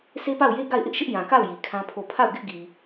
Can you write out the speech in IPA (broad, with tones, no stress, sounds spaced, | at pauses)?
sʰ e˦ p a˦˨ ʊ̯ j e˦ ɡ a˦˨ ɪ̯ ʔ ɪ˦ ʔ ʃ ɪ˦ ʔ j ã˨ k a˦˨ ʊ̯ j i˨ kʰ ã˦ pʰ o˦˨ pʰ a˦˨ ʊ̯ ɡ ɪ˦ ʔ ɡ i˨